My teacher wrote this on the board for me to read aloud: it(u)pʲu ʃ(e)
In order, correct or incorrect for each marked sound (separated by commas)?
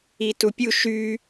correct, incorrect